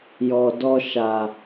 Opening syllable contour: low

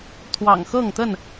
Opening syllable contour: low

